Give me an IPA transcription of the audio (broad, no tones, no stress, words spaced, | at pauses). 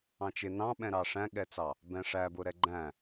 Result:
ɑ̃t͡ʃɪ nɑ̃ɓɛ̃ ɾɑʂæ̃ɠɛt͡sɑ | bɛ̃ʂæbʊ ɾɛɡ͡ǃæ̃